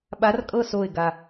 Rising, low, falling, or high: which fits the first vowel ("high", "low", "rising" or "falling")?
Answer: rising